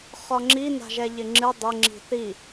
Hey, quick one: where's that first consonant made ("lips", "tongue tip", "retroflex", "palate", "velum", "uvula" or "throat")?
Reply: uvula